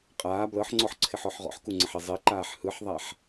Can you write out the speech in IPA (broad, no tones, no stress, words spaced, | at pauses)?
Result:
qʼaː blɤħŋ͡ǀɔħǀʰɪħɔħ ʁɔ̰ħkuŋ͡ǀəħe zˤeǃaːħ hɯħðˤaħ